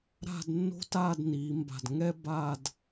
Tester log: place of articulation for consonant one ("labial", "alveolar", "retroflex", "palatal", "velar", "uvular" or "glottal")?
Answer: alveolar